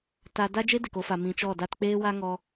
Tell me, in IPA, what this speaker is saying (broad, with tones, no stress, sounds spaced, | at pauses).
t a˧ d a˦ d͡ʒ e˦ d e˨ k o˧ f a˨ m ĩ˧ t͡ʃ ɔ˦˨ d a˧ t k͡p eː˦ w a˦ ŋ ɔ˧